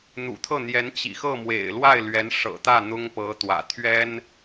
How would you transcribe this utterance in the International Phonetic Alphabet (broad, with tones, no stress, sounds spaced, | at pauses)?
n̪ ṵ˨˩ t̪ʰ ɤ˥˩ n̪ j ɛ˧˥ n t͡ɕ ḭ˨˩ x ɤ˥˩ m w ḛ˨˩ ɪ̯ l w a˥˩ ɪ̯ l ɥ ɛ˧˥ n ʂ ɤ̰˨˩ t̪ ä˥˩ n̪ ʊ˥ ŋ p ɤ˧˥ t̪ w ä̰˨˩ t̪ʰ ɥ ɛ˥ n